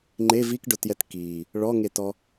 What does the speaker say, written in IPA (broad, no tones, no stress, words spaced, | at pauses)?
ŋ͡ǃe vikɖʊtjɛt ki | ɭɔŋetɔ